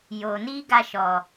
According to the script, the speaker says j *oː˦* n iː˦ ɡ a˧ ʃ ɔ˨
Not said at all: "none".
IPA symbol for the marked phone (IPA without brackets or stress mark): oː˨